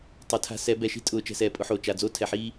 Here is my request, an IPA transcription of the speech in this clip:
tˤ ɛ˨ tʰ a̤˧ s ɛ˨˦ b ɛ˨ ʃ i̤˦ tʼ ʊː˨ t͡ʃ ɛ̤˧ s ɛː˨ pʼ ʊ˦ ħ oː˨ t͡ʃ a˨ d͡z o˦ tʰ ɛ˨ ħ iː˦

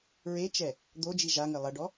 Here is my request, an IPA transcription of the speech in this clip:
ɹ e t͡ʃ ɛ | d̪ o d͡ʒ i ʒ a ŋ ɘ lˠ ɐ ɖ ɔ

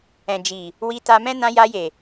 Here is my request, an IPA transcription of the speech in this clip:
ɛ̃˨ d͡ʒ i˨ | w i˧ t a˧ m ɛ̃˦ n ã˧ j a˧ j e˨

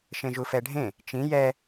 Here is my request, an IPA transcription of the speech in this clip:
ʃ ẽ ʒ u f ɛ ɖʱ ẽ | t͡ʃ ĩ j ɛ

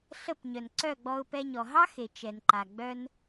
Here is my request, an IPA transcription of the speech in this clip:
ɬ ə˦˨ p ɲ œ˨ n ǀ œ˦˨ ɡ͡b ɔ˧ ʊ̯ p ɛ˧ ɲ ɔ˨ ɦ ɑ˦ x e˨ t͡ʃ ɛ˨ n ǃ a˨ ɡ͡b œ˦ n

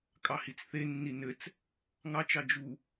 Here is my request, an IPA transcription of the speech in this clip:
kʼ ɑ h i t͡s θ e nː i n ɘ t͡s | ŋ ɑ t͡ʃ ɑ d͡ʒ u

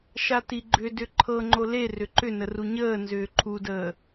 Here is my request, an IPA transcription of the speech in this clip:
ʃ a t i ɡ͡ǃ ʏ d ʏ ǃʰ ɤ ŋ͡ǃ o l e r ʏ ǃ ʏ n ə r u ɲ əː n z ʏː ǃʰ u d əː

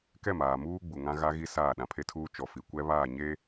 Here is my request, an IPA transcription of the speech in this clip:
k ɛ˦˨ m aː˨ m uː˦ ɡ͡b u˨ ŋ ã˦ ɣ a˦ ɣ i˦ s aː˦˨ ɗ ã˨ pʰ e˦ tʰ uː˦ t͡ʃ ɔ˨ f i˨ kʷ ɛ˦ β aː˦˨ ɲ e˦

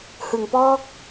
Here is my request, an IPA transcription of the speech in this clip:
h ɯ˩˦ ŋ p ɔː˥˩ k̚

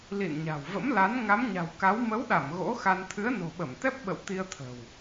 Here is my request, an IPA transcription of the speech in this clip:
l ḭ˧˨ n ɲ a̤˨˩ w v ə̰˧˥ m l a˨˦ n ŋ a˨˦ m ɲ a̤˨˩ w k a˨˦ w m ə˨˦ w ɗ a˧˩ m ɣ o̰˧˥ x a˧ n t̪ʰ ɨ˨˦ ə̯ n o̤˨˩ ɓ ə˧˩ m t̪ ɛ˦˥ p̚ ɓ ə̰˧˨ w t̪ i˧ ə̯ t̪ʰ ə̤˨˩ w

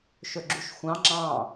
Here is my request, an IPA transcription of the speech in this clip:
ʃ ɵ ɡ͡ǁ u ʃ xʷ ɑ̃ ŋ͡ǁ ɑ̃

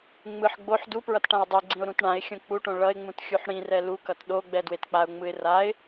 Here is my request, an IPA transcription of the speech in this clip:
ŋ͡m ɯ ħ ɡ͡b o ħ d u p ɹ ʌ t ʈ ã ɪ̯ dˤ i ɡ͡ǀ ĩ ʊ̯ ɾ ũ t ɳ ã ɪ̯ xʲ õ k͡p u ʈ õ ɭ ʌ ɪ̯ ŋ͡m ũ t xʲ u ħ ɽ ĩ r ɛ l u k ʌ t ɗ o ɡ͡b ɛ d w e t k͡p a ʊ̯ ŋ͡m ɯ ɪ̯ r a ɪ̯

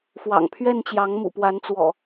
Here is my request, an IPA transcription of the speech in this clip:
f w ɑ̰˨˩ ŋ pʰ ɥ ɛ˥˨ n t͡ɕ j ɑ˨˦ ŋ m ṵ˨˩ p w a˨˦ n t͡s w ɔ̰˨˩

